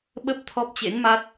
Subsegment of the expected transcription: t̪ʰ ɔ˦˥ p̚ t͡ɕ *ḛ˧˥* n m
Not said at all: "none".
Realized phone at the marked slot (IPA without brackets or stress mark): ḛ˧˥